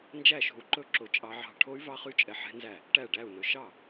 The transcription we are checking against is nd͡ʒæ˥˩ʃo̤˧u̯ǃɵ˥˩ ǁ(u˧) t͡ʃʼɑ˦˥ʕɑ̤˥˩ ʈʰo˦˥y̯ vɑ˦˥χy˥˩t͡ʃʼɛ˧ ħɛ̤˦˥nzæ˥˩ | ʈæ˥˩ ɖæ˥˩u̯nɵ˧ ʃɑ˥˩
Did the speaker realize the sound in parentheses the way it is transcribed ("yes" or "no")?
no